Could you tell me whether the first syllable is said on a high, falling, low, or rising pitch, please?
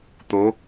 rising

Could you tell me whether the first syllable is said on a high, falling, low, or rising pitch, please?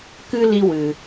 high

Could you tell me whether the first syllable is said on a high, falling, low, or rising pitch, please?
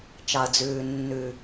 low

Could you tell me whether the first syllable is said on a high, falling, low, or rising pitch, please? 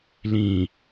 low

